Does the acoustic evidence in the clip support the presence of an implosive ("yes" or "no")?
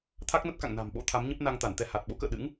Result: yes